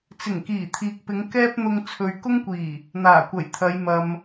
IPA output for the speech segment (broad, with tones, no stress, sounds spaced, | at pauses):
t͡s ɪ˨˩ ŋ k iː˨˩ t̪ʰ iː˨ k̚ p ɪ˨˧ ŋ k ɛː˥ p̚ n̪ ʊ˧ ŋ t͡sʰ ɵ˨ ɥ k ʊ˥ ŋ kʷ iː˨˩ | n̪ aː˨˩ kʷ ɐ˨˩ j t̪ʰ ɐ˨˧ j m ɐ˧ m